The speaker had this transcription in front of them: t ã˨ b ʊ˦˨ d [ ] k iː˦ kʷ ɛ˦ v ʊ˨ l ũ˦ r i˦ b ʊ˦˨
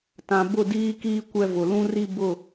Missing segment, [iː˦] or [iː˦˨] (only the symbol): iː˦